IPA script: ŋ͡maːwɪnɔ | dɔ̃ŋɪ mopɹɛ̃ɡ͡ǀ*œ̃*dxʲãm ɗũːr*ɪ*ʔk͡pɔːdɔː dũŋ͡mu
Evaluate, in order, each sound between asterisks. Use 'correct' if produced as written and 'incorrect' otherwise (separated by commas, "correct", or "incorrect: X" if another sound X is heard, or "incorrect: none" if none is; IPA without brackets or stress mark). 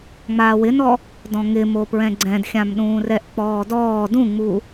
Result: incorrect: ɛ̃, incorrect: ɛ